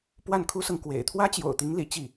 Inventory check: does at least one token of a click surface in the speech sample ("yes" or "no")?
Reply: no